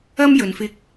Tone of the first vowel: high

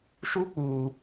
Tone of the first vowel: high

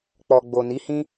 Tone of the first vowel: low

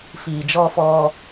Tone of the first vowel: low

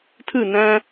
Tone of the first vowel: falling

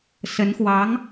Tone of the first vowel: rising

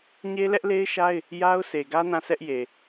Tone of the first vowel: high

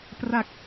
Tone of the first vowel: low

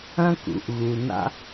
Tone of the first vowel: high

